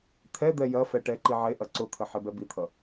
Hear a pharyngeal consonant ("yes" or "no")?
yes